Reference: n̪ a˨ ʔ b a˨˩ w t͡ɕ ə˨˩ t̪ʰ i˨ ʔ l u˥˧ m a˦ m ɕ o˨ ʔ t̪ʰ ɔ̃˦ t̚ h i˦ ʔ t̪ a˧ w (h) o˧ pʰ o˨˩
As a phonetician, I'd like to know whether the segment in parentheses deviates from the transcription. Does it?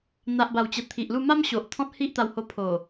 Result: no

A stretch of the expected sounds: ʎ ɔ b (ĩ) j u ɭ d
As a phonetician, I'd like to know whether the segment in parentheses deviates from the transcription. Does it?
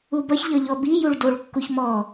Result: yes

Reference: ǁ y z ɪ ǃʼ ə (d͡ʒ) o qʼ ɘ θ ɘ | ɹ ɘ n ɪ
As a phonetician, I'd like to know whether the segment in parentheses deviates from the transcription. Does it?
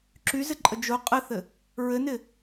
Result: no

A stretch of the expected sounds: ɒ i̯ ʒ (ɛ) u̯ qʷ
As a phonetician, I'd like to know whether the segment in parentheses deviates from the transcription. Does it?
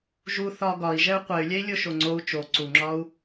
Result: no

